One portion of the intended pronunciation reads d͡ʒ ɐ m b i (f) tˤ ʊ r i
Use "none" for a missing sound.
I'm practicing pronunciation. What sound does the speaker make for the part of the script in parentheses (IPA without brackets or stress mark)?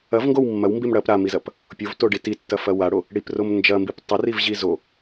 p